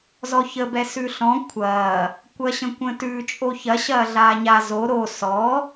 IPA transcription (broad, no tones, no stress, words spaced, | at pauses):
zɔçəbɛ sʉɬɔ̃ kʷʰɐː | kʷɐɕə̃kʷə̃tʉ t͡ʃʼoçɐ ɕɐːɮaːɲa zo ɾo sɔ